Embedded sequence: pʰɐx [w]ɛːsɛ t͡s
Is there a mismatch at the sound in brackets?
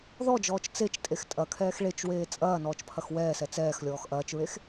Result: no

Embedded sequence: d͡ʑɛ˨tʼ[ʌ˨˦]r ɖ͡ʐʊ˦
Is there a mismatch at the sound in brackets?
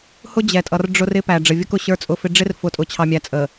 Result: yes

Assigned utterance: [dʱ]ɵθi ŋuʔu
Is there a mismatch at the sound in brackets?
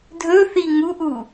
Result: no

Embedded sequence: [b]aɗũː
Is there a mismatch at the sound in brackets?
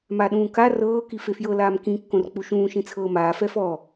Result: yes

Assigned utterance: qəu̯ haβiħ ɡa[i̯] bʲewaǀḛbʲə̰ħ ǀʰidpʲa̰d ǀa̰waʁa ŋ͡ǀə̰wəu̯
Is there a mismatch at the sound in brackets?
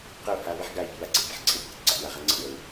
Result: no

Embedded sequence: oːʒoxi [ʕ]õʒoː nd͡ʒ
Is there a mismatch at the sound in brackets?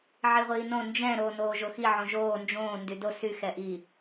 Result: no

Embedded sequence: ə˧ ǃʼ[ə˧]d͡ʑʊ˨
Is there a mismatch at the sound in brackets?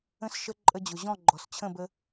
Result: no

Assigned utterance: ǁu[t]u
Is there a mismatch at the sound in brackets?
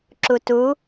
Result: no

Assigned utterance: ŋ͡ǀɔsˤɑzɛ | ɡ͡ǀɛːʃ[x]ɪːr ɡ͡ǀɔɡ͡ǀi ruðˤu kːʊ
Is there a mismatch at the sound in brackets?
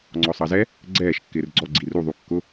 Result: yes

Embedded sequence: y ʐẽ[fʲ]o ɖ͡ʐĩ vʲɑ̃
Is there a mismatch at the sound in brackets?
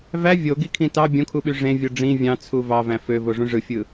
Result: yes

